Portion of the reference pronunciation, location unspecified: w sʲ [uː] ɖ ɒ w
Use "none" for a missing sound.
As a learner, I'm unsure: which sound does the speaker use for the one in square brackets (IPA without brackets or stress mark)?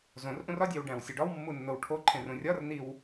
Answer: u